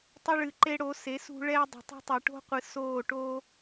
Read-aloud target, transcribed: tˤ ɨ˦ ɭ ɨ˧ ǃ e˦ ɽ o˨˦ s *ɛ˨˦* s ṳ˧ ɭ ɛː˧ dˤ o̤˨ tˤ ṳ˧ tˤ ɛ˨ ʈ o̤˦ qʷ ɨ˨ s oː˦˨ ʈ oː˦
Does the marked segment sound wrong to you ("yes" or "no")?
yes